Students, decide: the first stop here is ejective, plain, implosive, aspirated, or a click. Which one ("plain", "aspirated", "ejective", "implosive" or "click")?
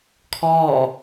aspirated